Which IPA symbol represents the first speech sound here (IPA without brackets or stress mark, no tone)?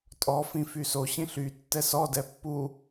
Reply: tʼ